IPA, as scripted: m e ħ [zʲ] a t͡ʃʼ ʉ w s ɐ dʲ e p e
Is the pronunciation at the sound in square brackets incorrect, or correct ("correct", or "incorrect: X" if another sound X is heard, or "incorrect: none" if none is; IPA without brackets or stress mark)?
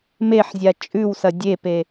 correct